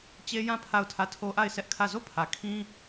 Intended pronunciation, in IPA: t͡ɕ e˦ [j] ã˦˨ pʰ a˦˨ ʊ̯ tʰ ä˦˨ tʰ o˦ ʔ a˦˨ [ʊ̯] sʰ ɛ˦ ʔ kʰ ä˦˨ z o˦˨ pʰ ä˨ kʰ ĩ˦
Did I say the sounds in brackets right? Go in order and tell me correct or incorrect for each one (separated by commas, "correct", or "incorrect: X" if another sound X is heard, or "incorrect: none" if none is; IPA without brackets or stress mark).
correct, incorrect: ɪ̯